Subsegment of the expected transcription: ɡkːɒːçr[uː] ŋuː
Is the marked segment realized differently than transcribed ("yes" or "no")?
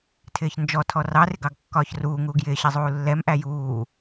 no